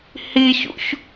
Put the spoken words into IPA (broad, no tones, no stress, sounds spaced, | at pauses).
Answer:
h i ç ṵ ç